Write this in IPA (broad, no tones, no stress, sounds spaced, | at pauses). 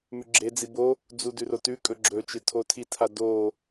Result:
m ʉ ɡ͡ǁ e d͡z i b o | d͡z u d ʉ r o t ʉ kʼ ɵ ɡ͡ǁ ɵ t͡ʃ ɨ tʰ o tʰ i tʰ a d o